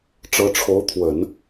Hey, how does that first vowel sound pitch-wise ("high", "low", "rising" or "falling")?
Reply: rising